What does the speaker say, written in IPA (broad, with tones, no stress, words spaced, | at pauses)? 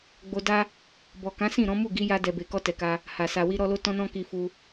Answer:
ɡ͡bo˧da˦ | bɔ˨kã˨˦sĩ˦˨ ɾɔ̃˨˦mu˦˨ɡi˨˦ja˧ dɛ˨be˨kɔ˧ tɛ˨ka˧ | ha˨ sa˨wi˧ɾɔ˧lo˦ tɔ̃˦nɔ̃˦ki˧ fu˧